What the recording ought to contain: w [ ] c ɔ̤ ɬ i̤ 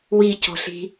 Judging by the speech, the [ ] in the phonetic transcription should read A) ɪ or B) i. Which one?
B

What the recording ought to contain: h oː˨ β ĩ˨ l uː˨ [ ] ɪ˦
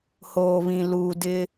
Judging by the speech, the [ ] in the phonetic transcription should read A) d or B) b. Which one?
A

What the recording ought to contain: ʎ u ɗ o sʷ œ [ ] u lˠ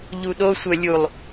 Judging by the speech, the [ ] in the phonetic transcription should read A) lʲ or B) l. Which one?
A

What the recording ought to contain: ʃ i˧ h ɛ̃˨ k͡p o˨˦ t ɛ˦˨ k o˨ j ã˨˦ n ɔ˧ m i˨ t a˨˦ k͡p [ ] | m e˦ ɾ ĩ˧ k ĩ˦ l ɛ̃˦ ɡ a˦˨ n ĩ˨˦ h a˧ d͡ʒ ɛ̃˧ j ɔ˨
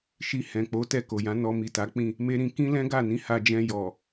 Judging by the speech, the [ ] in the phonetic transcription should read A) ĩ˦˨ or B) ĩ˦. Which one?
A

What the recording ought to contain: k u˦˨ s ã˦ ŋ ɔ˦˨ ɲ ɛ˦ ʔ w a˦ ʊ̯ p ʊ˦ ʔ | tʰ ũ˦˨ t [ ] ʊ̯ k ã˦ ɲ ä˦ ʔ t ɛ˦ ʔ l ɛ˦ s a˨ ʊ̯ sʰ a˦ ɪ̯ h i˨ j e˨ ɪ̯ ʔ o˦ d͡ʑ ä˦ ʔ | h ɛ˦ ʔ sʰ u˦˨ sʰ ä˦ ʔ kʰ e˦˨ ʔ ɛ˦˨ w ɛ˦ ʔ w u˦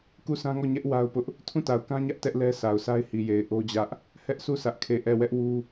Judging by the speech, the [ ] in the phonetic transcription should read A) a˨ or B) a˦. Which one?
A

